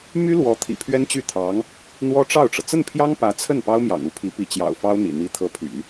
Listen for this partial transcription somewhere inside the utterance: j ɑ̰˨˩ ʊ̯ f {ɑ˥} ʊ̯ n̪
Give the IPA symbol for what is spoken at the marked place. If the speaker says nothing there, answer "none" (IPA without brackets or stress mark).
ɑ˥